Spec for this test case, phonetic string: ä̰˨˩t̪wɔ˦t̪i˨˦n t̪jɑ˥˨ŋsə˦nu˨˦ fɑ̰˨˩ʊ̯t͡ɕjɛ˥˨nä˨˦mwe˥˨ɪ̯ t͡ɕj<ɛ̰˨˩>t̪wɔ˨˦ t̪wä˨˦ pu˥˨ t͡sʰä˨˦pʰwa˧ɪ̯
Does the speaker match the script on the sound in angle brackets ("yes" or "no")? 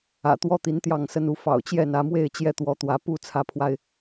no